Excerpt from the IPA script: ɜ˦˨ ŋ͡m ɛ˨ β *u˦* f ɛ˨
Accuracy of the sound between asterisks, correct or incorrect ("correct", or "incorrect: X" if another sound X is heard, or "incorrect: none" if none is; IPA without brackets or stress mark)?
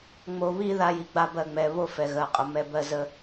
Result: incorrect: o˦